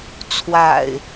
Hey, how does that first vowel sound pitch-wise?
low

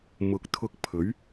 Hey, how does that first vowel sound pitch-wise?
low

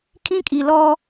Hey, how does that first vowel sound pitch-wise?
high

